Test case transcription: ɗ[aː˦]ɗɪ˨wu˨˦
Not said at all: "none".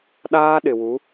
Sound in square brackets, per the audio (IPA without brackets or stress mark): aː˦